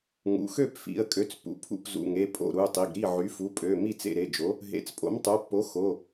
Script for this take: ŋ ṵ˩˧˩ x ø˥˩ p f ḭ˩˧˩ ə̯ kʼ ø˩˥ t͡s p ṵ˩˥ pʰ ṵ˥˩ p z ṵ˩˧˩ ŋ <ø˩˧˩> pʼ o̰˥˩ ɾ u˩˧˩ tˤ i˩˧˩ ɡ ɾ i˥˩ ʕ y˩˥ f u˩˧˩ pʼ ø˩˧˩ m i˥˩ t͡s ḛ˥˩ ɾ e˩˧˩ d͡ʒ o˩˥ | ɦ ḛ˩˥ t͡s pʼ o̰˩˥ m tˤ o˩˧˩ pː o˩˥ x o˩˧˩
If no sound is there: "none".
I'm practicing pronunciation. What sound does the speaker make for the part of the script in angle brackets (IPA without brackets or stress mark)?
e˩˧˩